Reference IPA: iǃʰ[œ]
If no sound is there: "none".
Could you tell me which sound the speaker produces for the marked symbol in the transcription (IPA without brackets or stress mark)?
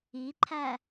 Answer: æ